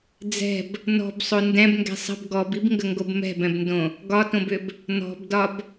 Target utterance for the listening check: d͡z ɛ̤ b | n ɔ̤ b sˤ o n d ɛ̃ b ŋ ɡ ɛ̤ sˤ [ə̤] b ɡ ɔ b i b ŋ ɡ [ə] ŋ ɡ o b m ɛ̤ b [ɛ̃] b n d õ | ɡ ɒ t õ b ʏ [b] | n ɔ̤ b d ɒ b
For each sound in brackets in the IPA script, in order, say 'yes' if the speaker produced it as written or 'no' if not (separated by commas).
yes, yes, yes, yes